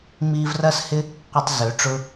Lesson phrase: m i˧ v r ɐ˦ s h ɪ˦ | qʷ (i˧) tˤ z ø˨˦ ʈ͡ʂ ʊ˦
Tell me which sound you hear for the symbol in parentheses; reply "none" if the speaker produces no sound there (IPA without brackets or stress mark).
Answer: i˧